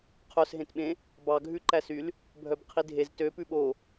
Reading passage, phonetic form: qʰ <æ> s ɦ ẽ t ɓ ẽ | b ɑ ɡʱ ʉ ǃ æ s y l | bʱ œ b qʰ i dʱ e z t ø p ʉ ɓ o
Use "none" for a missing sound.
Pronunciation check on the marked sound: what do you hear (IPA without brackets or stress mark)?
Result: œ